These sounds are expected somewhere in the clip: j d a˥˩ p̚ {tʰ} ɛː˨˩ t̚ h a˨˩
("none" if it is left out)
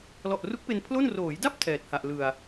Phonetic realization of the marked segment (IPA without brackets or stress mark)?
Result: tʰ